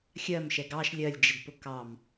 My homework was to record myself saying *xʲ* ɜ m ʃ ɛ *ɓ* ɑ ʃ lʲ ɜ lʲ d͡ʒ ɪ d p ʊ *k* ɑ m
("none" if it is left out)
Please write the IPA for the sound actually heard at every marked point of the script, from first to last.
xʲ, ɡ, k

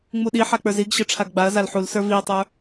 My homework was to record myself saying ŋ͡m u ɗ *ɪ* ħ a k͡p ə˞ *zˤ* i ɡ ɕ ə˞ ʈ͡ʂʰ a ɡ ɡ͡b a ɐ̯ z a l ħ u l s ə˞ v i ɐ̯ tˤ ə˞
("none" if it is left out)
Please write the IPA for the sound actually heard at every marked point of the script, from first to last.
i, z

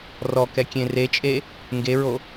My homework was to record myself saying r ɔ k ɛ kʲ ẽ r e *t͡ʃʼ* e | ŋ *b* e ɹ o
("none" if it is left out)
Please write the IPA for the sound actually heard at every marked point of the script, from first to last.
t͡ʃʼ, ɡ

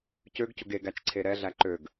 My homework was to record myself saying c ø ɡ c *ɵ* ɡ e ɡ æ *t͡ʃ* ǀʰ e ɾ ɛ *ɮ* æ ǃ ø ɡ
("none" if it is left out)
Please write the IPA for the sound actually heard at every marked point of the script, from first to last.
ʊ, t͡ʃ, ɮ

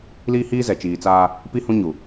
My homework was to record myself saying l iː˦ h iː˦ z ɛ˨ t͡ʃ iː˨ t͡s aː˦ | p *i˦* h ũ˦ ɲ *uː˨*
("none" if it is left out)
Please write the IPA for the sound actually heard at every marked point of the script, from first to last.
i˦, u˨

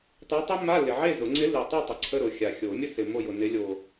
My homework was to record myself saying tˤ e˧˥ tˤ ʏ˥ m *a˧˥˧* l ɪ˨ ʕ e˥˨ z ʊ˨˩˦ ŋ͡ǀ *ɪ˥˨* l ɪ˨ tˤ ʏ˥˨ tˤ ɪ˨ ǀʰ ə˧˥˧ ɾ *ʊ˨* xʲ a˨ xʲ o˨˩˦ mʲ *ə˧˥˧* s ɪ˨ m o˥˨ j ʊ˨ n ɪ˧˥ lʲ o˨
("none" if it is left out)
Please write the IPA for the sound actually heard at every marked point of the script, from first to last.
a˧˥˧, ɪ˧˥, ʊ˨, ə˥

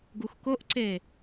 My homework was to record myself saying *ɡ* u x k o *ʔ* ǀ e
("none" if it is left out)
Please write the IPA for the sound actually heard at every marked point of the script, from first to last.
ɡ, ʔ

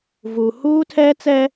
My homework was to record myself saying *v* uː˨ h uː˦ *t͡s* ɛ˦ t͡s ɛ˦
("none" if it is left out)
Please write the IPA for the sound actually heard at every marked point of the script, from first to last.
v, tʰ

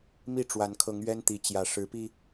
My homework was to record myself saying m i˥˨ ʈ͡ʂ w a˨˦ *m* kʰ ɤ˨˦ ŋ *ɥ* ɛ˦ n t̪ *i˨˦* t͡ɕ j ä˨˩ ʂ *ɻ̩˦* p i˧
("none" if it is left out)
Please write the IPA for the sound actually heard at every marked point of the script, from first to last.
n, ɥ, i˨˦, ɻ̩˨˦

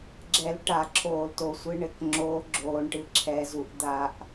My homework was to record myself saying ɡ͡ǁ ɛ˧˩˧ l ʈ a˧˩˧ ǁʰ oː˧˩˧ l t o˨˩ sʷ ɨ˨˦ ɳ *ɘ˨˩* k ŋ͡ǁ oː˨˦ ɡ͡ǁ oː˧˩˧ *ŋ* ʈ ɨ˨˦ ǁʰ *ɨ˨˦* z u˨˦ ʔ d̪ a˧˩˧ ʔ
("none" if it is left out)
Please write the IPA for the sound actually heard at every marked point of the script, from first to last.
ɘ˨˩, ɳ, ɛ˨˦

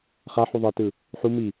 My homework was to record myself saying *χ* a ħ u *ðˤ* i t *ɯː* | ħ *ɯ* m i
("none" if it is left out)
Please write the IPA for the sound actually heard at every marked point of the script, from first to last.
χ, ðˤ, ɯ, u

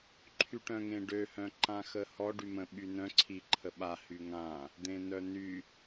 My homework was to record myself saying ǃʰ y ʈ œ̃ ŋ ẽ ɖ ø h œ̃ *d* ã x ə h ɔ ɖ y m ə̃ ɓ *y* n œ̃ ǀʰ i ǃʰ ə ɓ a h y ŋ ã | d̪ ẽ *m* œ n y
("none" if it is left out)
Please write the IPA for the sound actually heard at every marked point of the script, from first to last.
ǃ, y, n

